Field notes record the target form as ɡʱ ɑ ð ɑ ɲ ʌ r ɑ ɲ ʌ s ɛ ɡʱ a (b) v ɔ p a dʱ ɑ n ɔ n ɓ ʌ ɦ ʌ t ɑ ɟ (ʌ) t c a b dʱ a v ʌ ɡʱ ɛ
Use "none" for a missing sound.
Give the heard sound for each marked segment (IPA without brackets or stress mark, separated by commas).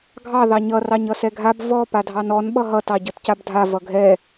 b, ʌ